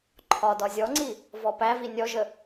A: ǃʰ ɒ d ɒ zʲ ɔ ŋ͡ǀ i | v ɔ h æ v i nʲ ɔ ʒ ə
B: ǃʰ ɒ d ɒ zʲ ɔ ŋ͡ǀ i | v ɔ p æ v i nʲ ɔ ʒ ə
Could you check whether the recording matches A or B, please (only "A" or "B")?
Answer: B